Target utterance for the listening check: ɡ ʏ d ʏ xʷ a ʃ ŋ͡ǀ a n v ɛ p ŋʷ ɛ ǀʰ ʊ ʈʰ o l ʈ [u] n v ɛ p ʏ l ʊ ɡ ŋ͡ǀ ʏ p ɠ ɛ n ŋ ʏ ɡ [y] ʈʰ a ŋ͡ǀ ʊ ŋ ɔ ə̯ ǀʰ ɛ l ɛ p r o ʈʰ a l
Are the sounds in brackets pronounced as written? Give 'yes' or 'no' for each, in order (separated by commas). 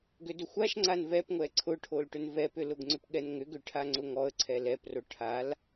no, no